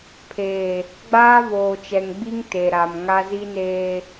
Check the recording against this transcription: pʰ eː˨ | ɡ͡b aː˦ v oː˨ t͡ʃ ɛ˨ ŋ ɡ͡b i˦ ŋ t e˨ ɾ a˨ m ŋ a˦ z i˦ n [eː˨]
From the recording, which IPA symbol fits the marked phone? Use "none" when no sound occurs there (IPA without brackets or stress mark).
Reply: eː˦